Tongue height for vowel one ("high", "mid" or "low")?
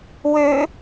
mid